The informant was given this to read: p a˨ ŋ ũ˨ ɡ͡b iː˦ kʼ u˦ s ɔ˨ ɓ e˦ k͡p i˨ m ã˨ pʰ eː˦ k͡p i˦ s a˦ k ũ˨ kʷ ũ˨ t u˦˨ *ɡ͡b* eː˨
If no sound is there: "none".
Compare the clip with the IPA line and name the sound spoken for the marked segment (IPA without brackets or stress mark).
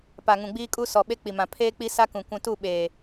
ɓ